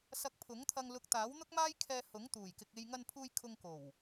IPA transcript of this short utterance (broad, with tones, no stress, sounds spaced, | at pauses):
s ɐ˧ k̚ pʰ ʊ˨˥ ŋ t̪ʰ ɐ˧ ŋ l ʊ˧ k̚ t̪ aː˨˥ w n̪ ʊ˥ k̚ m aː˥ j kʰ ɛː˧ h ʊ˨˥ ŋ t̪ uː˨˩ j k ɪ˨ k̚ e˧ j ŋ ɐ˧ n pʰ uː˧ j kʰ ʊ˧ ŋ k o˨˩ w